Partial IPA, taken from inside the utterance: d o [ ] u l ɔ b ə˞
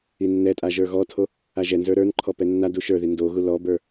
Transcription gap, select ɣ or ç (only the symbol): ɣ